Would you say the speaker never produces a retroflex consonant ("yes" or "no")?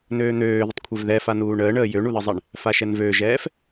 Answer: no